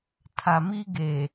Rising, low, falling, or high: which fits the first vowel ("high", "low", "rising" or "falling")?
low